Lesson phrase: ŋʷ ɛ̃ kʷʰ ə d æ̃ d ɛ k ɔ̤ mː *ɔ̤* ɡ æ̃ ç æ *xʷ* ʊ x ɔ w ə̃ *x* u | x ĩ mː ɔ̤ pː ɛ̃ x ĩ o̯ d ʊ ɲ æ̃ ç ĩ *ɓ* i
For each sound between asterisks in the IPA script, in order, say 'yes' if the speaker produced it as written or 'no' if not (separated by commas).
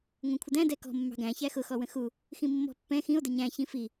no, no, yes, no